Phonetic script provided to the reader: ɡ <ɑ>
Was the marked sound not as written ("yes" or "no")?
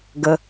yes